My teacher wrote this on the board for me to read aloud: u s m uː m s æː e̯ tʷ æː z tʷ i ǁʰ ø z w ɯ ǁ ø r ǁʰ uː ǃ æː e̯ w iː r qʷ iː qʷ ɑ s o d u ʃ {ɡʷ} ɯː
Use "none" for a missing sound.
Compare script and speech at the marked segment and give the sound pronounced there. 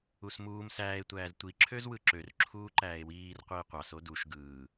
ɡ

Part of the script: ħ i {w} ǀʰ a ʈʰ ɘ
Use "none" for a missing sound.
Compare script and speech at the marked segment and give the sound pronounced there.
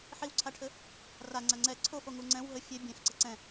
w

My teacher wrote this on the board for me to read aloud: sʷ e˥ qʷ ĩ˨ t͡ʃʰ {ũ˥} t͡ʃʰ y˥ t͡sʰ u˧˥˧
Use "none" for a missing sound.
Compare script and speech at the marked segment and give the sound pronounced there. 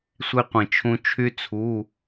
ũ˥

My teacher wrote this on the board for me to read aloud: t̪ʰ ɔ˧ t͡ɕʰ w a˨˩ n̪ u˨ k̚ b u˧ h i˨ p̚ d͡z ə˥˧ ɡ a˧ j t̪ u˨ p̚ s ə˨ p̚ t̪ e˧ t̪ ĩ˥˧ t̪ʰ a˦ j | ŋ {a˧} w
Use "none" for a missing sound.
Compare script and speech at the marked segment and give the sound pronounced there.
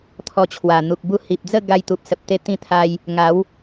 a˨˦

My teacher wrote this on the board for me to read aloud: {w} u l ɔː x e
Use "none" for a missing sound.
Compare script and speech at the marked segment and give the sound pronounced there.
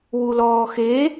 w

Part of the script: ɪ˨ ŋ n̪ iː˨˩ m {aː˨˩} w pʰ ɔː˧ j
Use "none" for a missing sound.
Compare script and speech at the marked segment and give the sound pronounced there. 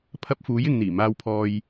aː˧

